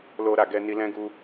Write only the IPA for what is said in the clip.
l o˧ ɾ a˨ ɡ ɛ˧ n i˧ l ɛ̃˦ ɡ u˦

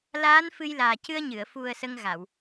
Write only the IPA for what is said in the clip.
l aː˧˥ n f ɨ˧ j l aː˨˩ c ɨ˧ ə̯ ɲ ɨ˨˩˨ ə̯ f u˨˩ ə̯ s ə˧ ŋ ɣ a˨˩˨ w

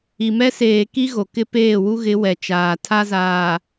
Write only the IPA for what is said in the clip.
i˨ m ɛ˦ s eː˨ k i˦ ɣ o˨ k ɪ˦ p eː˦˨ w u˦ ɣ ɪ˨˦ w ɛ˨ t͡ʃ aː˨ tʰ a˦ z aː˨

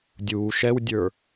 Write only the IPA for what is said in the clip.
dʲ uː ʃ ɛ w dʲ ə˞

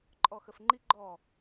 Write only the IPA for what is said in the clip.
ǃʼ ɔ x ə f ŋ͡ǃ i ɡ͡ǃ ɔ

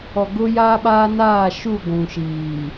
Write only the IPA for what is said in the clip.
ɔ˨ ɡ ʊ˦ j a˦ ɓ aː˦ n aː˦˨ ʃ u˦˨ ɡʷ ũ˨ ʃ iː˨

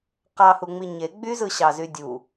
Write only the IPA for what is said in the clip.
q ɑ h u ŋ͡m i ɲ e ɡ͡b y z ɯ ɕ ɑ z y dʲ u

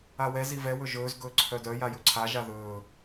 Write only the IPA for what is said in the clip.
a w ɛ z i v ɛ w ɵ ʒ ɵː z ɡ ɵː ǀʰ œ d œ j a j ɵ ǀʰ a ʒ a ð ɵː

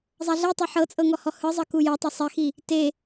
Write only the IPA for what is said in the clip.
zˤ a ɮ e tˤ ɤ ħ ɤ t͡sʼ ɤ ŋ ɔ h ɔ h ɯ zˤ ɤ k u j ɤ tˤ ɛ sˤ ɛ x i | t e

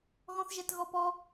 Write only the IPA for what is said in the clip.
ɣ ɔ̃ θ ʒ ɛ t ɣ ɔ p ɔ

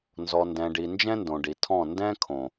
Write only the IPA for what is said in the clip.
n z ɔ˨ n d ɛ̃˨ ɖ i˨ n d͡ʒ ɛ̃˦ n d õ˨ ɖ i˨ tʰ ɔ̃˦˨ n d ɛ̃˦ kʰ õ˨

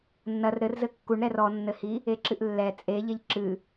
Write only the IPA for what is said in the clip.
nː ɐ r ɾ ɘ r z ɘ kː u ɳ ɾ ɛ r ɔ nː ɘ h i | e ǁ ɨ ʔ lː ɛ t͡sʼ e ʎ e ʎ ǁ ɨ

